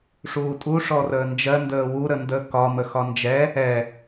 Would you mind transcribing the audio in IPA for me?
ʂ uː tʼ u ʂ ɔ r əː n d͡ʒ ɜ n d əː w u ɾ ə n d ə k ɒ m ə x ɒ n d͡ʒ ɛ | ɛ

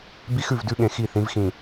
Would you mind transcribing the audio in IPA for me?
b i˦ x ʉ˨ v d ʉ˦ ɠ ẽ˨ x i˦˨ θ ĩ˨˦ v x ĩ˨

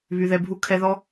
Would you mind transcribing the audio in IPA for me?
β y˧ ð ɛ˧ bʱ u˦ kʰ ɛ˧ ð ɔ˦

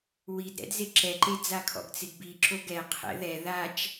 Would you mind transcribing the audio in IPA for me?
w i d ɾ ɛ̰ d z e ǁ ɛ ǃ e d͡z a kʰ ɔ̰ ɡ t͡s ɪ d b i ǁ o ɡ ɛ qʰ ɛ̰ ð ɛ ð a t͡ʃ

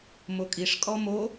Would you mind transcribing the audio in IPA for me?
m o kʼ i ʂ kʼ ɔ m o

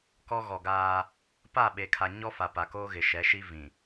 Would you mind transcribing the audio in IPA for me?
k ɔ˦ ɣ ɔ˨ ɡ aː˦ | p a˦˨ ɓ e˨ kʰ a˨ ɲ ɔ˦ f a˨ p a˨ k oː˦ ɣ ɪ˨ ʃ ɛ˨˦ ʃ i˦ v ĩ˨

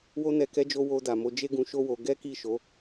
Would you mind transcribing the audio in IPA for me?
w o˧ n ɛ˨ k ɛ˨˦ d͡ʒ o˧ w o˧ d a˨ m o˧ d͡ʒ e˦ ɡ ũ˧ ʃ o˦ w o˧ ɡ ɛ˦ k i˦˨ ʃ o˨˦

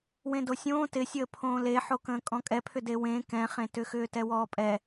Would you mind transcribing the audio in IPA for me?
w ẽ d o sʲ õː t ɪ sʲ əː pʰ õː l e ħ o k ə̃ː kʼ ɔ̃ kʼ ɛ pʰ ʏ d e w ẽ k ɛ̃ χ ẽ t ʏ x ʏː t ɛ w ɔː pʼ ɛ

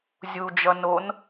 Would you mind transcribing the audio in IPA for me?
zʲ u d͡ʒ ʌ n o n

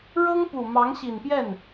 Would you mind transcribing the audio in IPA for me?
ɻ ɤ˥ ŋ p u˨˩ m ɑ˧˥ ŋ ɕ i˨˩ n p j ɛ˥˩ n

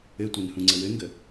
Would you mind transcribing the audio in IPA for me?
ɘ tʷ ɘ n h ũ ŋ͡ǀ ə w ɘ n ɡ ə

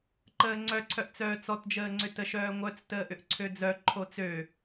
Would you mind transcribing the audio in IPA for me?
ǃ əː ŋ͡ǀ œ ǀʰ œ ʔ t͡s œː t͡s ɔ t d͡ʒ əː ŋ͡ǀ ʏ t ə ʃ œː ŋʷ œ t͡s t əː ʔ ʏ ʔ ǀʰ ø d͡z œ ǃʰ o t͡s ø

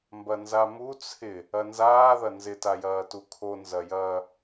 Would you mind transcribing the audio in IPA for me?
m b ɐ n z a m u t͡sʰ ɪ | ɐ n z aː ð ɐ n z ɪ t a j ɐː t u kʰ o n z ɐ j ɐː

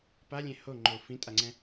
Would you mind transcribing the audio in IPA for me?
p a lʲ ẽ h o ŋ͡ǃ o f ĩ tʼ a ŋ͡ǀ ɛ̃

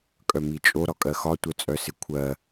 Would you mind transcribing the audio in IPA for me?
kʼ œ m i t͡ʃʼ o ɾ ɒ kʼ ɜ x ɒ tʷ œ t͡sʼ œ s ɪ kʷʰ ɜ

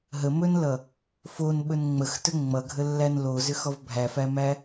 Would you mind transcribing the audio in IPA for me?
ɦ ə m ɵ n l ʌ | f o n ɓ ɵ n ŋ͡m ə x t ɵ ŋ͡m ʌ ɡʱ ə lː æ n l o z ʏ x ɔ v bʱ æ f æ m æ

